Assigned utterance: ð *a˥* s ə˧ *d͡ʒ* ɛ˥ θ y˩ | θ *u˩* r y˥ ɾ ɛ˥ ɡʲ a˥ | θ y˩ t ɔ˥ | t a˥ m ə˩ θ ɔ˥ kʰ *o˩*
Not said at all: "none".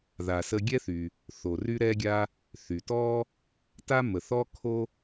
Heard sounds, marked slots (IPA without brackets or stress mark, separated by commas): a˩, ɡʲ, o˩, o˥